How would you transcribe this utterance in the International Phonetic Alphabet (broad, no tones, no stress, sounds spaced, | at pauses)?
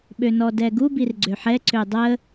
ɓ ø n ɔ d ɛ ɡ u b i r ɡ͡ǀ ø ħ ɛ ǀ ø dˤ ə